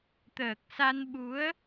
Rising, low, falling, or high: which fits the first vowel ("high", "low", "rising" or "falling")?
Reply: low